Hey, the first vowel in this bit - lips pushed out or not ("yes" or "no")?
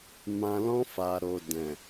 no